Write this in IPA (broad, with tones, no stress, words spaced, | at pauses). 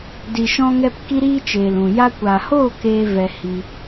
di˨ʃɔ̃˧ŋɛ˧p ki˦ɾiː˦t͡ʃeː˨l ũ˨ ja˧kʷa˨hoː˦˨ keː˧ vɛ˧hi˧